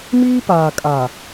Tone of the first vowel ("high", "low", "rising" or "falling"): high